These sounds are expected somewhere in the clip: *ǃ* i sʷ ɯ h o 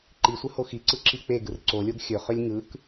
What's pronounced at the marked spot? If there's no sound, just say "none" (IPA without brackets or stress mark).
ǃ